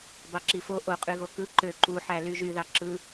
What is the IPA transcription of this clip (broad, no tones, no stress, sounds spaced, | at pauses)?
b ɑ ǁ i f o ʔ o qʼ y ɣ o k ɯ ǃ ø ǃ u ħ æ l y ʒ y ð ɑ ǁ ɯ